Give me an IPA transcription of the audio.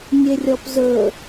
nʲ e rʲ ɔ p z ɵ

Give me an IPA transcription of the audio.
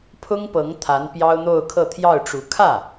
pʰ ʊ˥ ŋ p ɤ˧˥ ŋ t̪ʰ a˧˥ n p j ɑ˥ ʊ̯ n̪ o˥˧ ʊ̯ kʰ ɤ˥˧ t̪ʰ j ɑ˥˩ ʊ̯ ʈ͡ʂ u˧˥ kʰ ä˥˩

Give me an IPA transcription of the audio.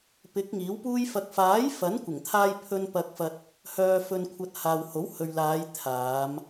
p ɪ˨˥ k̚ ŋ iː˨˥ w p uː˧ j f ɐ˨ k̚ f aː˨˥ j f ɐ˨˥ n kʷ ɪ˨˩ ŋ t̪ʰ aː˧ j pʰ ɵ˧ n p ɐ˧ k̚ f ɐ˧ t̚ | h œː˨ f ɵ˨ n kʷʰ ɐ˨ t̚ h aː˨ w h o˨˥ w h ɵ˨ ɥ l aː˨˧ j t̪ʰ aː˨˧ m

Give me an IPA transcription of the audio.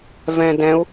v ɛ̃ d ɛ̃ u̯

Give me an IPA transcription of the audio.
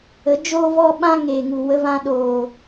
ə˨˦ d͡ʒ oː˦ v ɔ˦ ɓ ã˦ ŋ e˨ ŋ u˨ w ə˧ v ã˧ ɗ oː˨

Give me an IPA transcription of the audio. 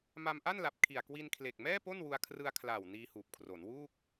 m a˧ m ʔ a˥˩ n l a˨˩ p̚ kʰ i˨˩ a̯ k w i˧ n kʰ l e˨˩ k̚ m ɛː˥˩ p o˥˩ n w u˧ a̯ kʰ r ɯ˧ a̯ kʰ l aː˨˩ w n iː˧ h uː˨˩ p̚ kʰ r o˩˦ n w uː˥˩ k̚

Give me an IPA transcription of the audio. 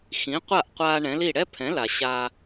x ĩ˩˥ qʷ a˥˩ ʔ qʷ aː˧ ɳ ɛ̃˩˥ l i˥˩ ɽ ɛ˥ pʰ ɛ̃˩˥ l a˩ ɕ a˧

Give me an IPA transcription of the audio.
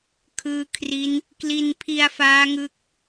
kʰ ɯː˦˥ kʰ r i˦˥ n | k l i˧ n pʰ i˧ a̯ f aː˦˥ ŋ ɯ˦˥ k̚

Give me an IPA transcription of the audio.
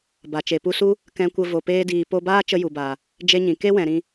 b a˨ t͡ʃ e˨ p u˧ s u˦ | k ɛ̃˧ kʷ ə˧ v o˨ p eː˧ d iː˨ p o˧ b aː˦ t͡ʃ ə˧ j u˨ b aː˨ | d͡ʒ e˦ ɲ ĩ˨ k e˦ w ɛ̃˨ ɾ ĩ˧

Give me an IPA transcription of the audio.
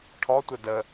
ʈʰ ɔ tʷ ə d ə

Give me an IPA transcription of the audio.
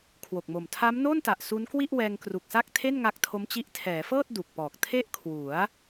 kʰ w o˨˩ k̚ m o˨˩ m tʰ a˦˥ m n oː˥˩ n t a˨˩ ʔ s u˦˥ n k w i˥˩ ʔ w ɛː˧ ŋ k r u˨˩ k̚ s a˥˩ k̚ tʰ e˥˩ n ŋ a˦˥ k̚ tʰ o˦˥ m t͡ɕ i˦˥ ʔ tʰ ɛː˩˦ f ɤː˥˩ t̚ d u˨˩ k̚ p ɔː˨˩ k̚ tʰ e˥˩ ʔ kʰ w u˩˦ a̯

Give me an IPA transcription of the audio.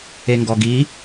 e ŋ ɡ ɔ ɡ i

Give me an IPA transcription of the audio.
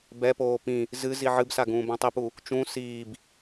b ɛ p oː p ĩ | z ɨ z i ʕ ɨ b s a ɡ ũː b ã tˤ i p u | t͡ʃ ũ s iː b

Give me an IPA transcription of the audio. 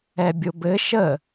ɛ bʲ o b ɘ ʃ ə

